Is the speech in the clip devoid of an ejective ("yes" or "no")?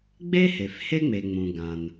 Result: yes